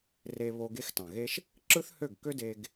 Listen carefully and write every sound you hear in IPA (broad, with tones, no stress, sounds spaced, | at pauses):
r e˧ β o˧ ɡ e˦ x t ɑ̃˨ ɣ e˦ ʃ | ǁ ɯ˦ θ h ø˦˨ ɡ k ø˦ d e˧ ɡ